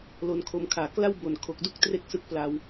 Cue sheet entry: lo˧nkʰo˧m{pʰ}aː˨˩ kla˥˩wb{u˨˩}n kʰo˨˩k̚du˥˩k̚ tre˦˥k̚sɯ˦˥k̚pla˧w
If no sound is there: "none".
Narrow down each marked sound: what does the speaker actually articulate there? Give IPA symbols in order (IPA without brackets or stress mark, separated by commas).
kʰ, o˨˩